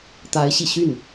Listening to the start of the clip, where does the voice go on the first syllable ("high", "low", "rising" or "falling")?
rising